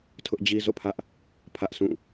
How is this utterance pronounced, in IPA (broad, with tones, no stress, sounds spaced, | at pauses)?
tʰ ʊ˦ ʔ d͡ʑ i˦ z o̰˦˨ pʰ ä˦ ʔ | pʰ ä˦ ʔ sʰ ũ˦˨